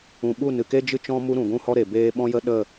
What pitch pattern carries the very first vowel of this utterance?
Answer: low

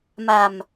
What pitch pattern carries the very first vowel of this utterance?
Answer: low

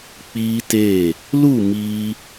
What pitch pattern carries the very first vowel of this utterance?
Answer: high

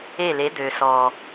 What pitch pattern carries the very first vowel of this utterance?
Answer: falling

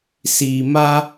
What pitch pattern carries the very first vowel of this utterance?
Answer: low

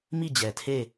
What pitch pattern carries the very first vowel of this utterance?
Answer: falling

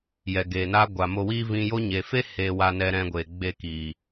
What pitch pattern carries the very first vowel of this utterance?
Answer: low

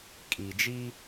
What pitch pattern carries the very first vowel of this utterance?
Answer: low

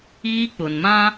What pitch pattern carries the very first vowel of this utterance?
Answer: high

